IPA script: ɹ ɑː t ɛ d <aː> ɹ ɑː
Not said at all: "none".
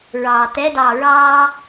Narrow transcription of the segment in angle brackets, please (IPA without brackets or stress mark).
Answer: ɑː